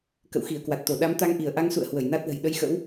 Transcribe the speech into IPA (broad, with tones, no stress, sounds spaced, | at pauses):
k ə̰˧˨ w x i˧˩ ə̯ k w a˨˩ t̚ t̪ o˧˩ ɗ a˨˦ m t̪ a˧ ŋ ʔ i˧˩ ə̯ ʔ a˧ ŋ s ṵ˧˨ ə̯ h w ə˧˩ j n a˦˥ t̚ l ə̤˨˩ j ɗ ə˧ j x ə̰˧˥ w